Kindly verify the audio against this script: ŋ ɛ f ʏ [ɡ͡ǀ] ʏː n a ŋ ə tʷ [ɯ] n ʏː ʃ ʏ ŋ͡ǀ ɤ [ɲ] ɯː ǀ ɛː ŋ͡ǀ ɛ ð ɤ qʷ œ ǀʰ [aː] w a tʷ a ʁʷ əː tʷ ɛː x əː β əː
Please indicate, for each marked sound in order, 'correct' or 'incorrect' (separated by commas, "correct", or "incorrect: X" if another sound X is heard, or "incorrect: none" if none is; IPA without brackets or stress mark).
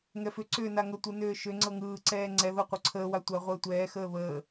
incorrect: ǀ, correct, incorrect: ŋ, incorrect: əː